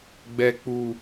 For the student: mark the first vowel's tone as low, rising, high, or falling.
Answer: high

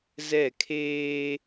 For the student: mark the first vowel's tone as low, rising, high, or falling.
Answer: falling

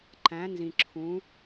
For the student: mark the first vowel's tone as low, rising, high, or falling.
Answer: rising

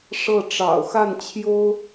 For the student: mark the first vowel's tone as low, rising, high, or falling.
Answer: falling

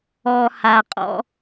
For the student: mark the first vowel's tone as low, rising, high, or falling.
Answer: low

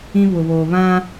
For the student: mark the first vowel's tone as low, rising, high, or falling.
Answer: high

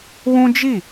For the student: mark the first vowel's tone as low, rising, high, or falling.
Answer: high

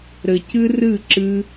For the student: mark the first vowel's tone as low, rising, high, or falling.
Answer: low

